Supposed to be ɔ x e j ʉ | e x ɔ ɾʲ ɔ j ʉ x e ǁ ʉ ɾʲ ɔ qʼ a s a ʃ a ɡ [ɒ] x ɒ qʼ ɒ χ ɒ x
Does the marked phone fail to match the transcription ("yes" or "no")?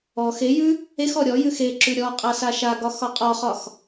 no